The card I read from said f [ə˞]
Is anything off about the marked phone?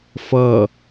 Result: yes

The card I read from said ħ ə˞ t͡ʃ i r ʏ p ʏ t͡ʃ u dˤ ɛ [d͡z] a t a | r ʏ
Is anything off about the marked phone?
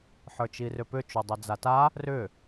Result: no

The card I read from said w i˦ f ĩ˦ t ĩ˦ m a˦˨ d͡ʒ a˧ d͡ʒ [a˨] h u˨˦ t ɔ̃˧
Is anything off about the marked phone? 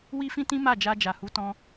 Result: no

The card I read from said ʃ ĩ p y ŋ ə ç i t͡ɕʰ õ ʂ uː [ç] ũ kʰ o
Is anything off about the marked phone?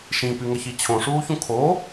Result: no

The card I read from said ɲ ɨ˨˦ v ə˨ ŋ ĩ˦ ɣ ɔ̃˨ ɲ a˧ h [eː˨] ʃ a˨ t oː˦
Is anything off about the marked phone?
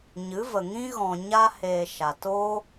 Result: no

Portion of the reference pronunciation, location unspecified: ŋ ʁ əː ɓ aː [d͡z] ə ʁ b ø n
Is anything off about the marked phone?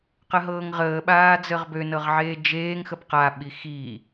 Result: no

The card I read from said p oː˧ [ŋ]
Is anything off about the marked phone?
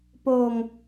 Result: no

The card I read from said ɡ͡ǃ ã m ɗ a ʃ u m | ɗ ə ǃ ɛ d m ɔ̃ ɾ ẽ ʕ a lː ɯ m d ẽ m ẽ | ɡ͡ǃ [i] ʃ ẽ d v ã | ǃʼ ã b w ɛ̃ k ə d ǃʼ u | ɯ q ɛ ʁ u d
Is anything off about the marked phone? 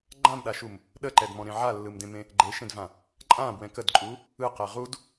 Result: yes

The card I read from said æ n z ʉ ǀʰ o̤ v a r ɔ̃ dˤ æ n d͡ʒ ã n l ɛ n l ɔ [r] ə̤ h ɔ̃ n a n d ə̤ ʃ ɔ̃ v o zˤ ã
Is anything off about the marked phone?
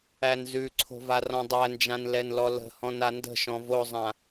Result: yes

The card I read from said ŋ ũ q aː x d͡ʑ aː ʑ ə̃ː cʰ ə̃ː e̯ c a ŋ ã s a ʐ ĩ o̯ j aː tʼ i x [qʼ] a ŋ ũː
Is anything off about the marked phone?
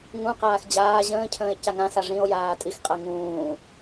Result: no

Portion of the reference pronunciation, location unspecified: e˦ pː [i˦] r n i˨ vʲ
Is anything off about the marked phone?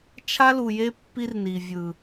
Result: no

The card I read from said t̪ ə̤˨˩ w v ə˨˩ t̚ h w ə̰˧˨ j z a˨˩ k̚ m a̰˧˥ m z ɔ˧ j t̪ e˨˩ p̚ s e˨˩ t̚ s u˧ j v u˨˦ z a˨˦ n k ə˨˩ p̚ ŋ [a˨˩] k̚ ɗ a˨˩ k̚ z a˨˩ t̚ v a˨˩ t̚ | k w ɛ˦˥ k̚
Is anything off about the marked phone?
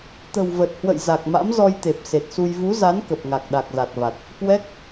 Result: no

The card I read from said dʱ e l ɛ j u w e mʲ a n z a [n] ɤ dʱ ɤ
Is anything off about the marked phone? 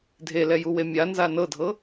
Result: no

